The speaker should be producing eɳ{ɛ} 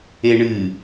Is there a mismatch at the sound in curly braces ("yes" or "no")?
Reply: yes